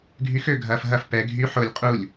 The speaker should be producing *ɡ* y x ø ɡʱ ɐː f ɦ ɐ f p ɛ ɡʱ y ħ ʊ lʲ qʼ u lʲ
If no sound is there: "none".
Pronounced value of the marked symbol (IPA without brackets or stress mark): ɡʱ